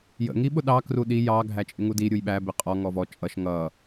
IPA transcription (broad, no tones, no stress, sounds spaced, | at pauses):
j ə̰ ŋ i ɓ ʊ ɗ ɑ k r u ɗ i j ɑ ɡʱ æ t͡ʃʼ ɪ ŋ u d i ɾʲ u j ɓ æ b ɪ qʼ ɔ ŋ ɔ v ɔ t͡ʃʼ ʌ ʃ ŋ ʌ